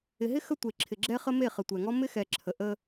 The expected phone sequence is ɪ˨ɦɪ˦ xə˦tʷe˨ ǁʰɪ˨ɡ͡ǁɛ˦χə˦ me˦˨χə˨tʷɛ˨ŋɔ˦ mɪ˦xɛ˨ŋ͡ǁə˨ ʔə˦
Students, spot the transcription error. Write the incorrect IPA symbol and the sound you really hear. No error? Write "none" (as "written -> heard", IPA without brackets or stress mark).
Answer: ŋ͡ǁ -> ǁʰ